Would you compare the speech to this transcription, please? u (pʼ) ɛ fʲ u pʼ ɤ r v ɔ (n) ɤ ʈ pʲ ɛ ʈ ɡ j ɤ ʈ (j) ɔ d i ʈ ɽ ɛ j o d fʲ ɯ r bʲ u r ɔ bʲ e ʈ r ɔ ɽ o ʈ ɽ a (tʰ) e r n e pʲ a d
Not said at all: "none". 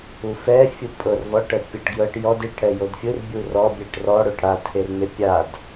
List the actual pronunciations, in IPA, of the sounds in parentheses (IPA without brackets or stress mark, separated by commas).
f, ʈ, j, tʰ